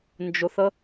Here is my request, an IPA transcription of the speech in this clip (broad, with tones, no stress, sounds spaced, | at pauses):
n d͡ʒ ʊ˩ θ ə˨